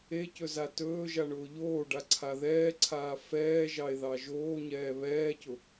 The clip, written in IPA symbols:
ecɵza tɵːʒaɳʊː ʎoːɖaǀʰa ðɛːǀʰaː fɛːʒɑe̯ðɑ ʒoːɲɛː βɛːcʊ

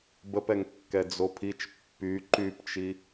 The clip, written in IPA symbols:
bəpɛŋkːɛ d͡zopʰit͡ʃ pːy ǃypt͡ʃi

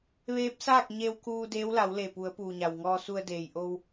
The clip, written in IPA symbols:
ʋeː˧˥p̚saː˥˨k̚ɲe˧wkuː˧ deː˧˥wla˩˧wle˧˩pu˩˧ə̯ puː˩ɲa˩wŋɔː˧ su˧ə̯ deː˩jʔo˧w

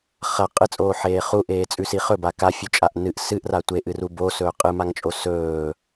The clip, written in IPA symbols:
χɐ qʼɨt͡sʼoːħeː χuʔeːt͡sʼʉsi χɵba kafʲʉt͡ʃʼaʔ nɨʔ sɨʔra tʷeʔɨru bosɵː qʼɨmaŋt͡ʃʼo sɵː

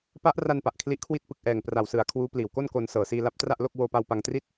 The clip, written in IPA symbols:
pa˦˥ʔra˧n pa˨˩ʔkʰli˦˥ʔkʰwi˥˩t̚ pɯ˨˩k̚ʔɛː˨˩ŋ pra˨˩wsɯ˨˩a̯ kʰwuː˦˥pliː˨˩wko˥˩nko˧n sɤː˨˩ siː˧la˦˥p̚tra˥˩ʔlo˥˩k̚ woː˧pa˧w pa˧ŋtri˥˩t̚

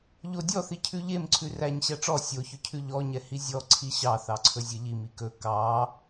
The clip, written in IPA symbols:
ʎodʲɔθi cʰʉʎemǀʰʉ ræɲ ɕæʈ͡ʂɔ sʲoçɵcʰʉ ʎɔɲɛ hizʲɔ ǀʰiɕɑ θɑǀʰɵzʲeʎim ikɵ kɑ

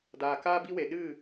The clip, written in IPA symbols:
daː˨kaː˦bi˦we˨ ɗɨ˦˨

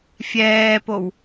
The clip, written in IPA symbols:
fʲɛːpow

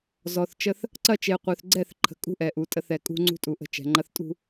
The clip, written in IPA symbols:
zɔ˨θ t͡ʃə˦θ | ǀɐ˦t͡ʃe˨ qʷœ˨θɡ͡ǀɛ˦˨θǃʰə̤˨ kʼṳ˦ʔɛ˨ʔu˨ tʼə˨˦θɛ˨ kʼṳ˦ŋ͡ǀṳ˦tʼu˨ʔə̤˦˨ t͡ʃɛ̤˨ŋ͡ǃɐ˦θ tʼṳ˦

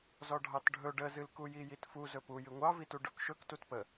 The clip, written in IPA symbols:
zɔɖʱɑtɖʱɵ ɖəzɨlkuji jitfu zɵpujɨ ŋʷɑvitu ɖɵkʃɵk tutpə

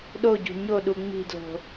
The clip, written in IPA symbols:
ɗoɟṳ ɲoɗu ŋ͡mi̤dlo̤

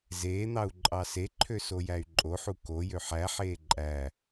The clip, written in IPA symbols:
zeːn̪ɑu̯ ǃʼɑseǃʰø sojæy̯ǃʼoħu ko jøħæħeː ǃʼæ

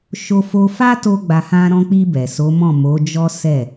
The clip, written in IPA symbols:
ʃo˧fo˧ fa˦to˧ ɡ͡ba˧hã˦ ɾɔ̃˧k͡pi˧ bɛ˨ so˨˦mɔ̃˦˨ mo˨˦d͡ʒɔ˦ sɛ˦˨

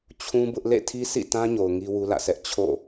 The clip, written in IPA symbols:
t͡ɕʰũ˦bʊ˦ʔ lḛ˦˨tʰi˦sḭ˦˨tã˦ ɲo˨ʊ̯ŋi˦ wu˦lä̰˦˨sʰɛ˦ʔ t͡ɕʰo̰˦˨

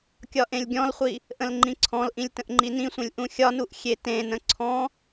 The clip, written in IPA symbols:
kʲɒʔẽlʲɡʲɔ̃lχʷi | ʔə̃lŋ͡ǃĩǀʰɔ̃lʔĩlʲ tə̃ʔŋ͡ǃinĩsʷẽlʲ ʔũxʲɒnuʔ xʲetẽnə̃ ǀʰɔ̃

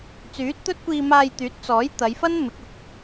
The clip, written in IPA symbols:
t͡syː˨˥t̚t̪ɵ˥t̚kʷiː˧maː˧j t̪yː˨˥t̚t͡sɔː˨˥j t̪ɐ˨˧jfɐ˥n mɪ˨˥k̚ʊ˨k̚

